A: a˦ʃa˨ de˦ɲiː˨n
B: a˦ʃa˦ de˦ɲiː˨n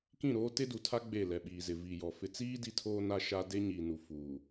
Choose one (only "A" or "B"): B